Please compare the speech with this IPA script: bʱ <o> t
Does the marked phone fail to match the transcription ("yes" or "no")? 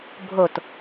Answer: no